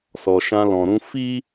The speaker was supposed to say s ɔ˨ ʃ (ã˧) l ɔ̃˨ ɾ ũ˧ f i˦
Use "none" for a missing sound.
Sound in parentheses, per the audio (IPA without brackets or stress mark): ã˧